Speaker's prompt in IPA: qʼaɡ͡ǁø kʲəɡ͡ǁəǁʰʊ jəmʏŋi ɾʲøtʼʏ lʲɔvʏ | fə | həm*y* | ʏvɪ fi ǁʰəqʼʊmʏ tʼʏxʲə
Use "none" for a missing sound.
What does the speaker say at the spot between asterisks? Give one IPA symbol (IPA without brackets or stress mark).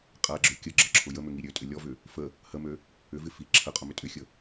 ø